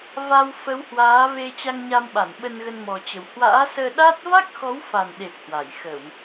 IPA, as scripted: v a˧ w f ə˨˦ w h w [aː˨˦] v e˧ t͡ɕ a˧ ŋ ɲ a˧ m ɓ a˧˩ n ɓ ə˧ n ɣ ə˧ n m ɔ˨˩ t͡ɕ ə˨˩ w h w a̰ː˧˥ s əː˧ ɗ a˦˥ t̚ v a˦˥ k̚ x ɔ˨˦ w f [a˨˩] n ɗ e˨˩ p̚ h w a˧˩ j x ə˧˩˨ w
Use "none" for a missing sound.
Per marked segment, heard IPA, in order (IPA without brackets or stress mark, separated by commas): aː˨˦, a˨˩